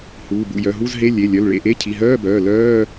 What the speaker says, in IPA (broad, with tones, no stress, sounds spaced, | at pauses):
h uː˩˧˩ b ṵ˩˧˩ j œ˩˧˩ ɦ u˧˥˧ z ɦ e˧˥˧ lʲ e˩˧˩ lʲ œ˩˧˩ l ɭ ḛ˩˧˩ ʔ e˧˥˧ cʰ i˩˧˩ ɦ œː˧˥˧ b œː˩˧˩ l œː˧˥˧